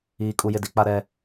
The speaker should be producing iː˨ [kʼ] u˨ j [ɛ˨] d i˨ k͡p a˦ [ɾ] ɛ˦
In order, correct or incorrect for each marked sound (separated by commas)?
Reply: correct, incorrect, correct